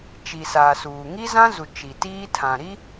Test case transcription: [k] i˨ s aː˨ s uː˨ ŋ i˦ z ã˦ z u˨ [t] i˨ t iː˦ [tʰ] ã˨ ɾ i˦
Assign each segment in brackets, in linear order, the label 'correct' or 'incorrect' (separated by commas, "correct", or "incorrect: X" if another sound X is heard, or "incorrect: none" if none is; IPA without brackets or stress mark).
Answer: incorrect: t͡ʃ, incorrect: t͡ʃ, correct